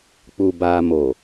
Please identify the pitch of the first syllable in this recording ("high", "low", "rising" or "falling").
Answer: low